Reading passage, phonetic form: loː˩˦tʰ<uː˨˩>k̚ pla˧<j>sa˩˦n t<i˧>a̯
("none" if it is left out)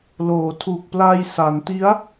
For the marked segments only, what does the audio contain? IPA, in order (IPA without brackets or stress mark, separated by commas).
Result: uː˨˩, j, i˦˥